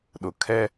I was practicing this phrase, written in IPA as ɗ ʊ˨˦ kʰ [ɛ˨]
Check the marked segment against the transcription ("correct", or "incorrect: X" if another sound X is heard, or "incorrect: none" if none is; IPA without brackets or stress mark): incorrect: ɛ˦